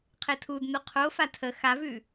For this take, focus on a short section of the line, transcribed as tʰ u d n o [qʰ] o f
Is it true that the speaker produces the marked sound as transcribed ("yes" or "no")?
yes